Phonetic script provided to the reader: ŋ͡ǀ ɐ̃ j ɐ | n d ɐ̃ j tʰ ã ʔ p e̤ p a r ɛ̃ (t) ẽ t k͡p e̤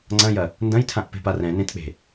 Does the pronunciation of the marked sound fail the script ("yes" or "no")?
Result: yes